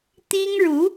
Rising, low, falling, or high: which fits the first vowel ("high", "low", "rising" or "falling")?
high